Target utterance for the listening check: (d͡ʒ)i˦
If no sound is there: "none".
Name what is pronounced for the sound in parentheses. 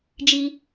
d͡ʒ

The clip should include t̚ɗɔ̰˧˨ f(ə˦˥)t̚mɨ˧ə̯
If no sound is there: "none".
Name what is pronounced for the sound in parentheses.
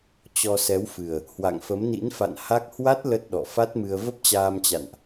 a˦˥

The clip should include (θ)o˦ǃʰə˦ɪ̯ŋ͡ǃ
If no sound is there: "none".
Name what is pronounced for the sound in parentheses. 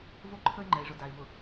v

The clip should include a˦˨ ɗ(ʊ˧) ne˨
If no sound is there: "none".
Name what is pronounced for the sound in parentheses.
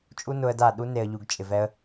u˧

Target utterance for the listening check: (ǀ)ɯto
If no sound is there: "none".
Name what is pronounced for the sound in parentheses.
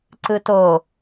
ǀ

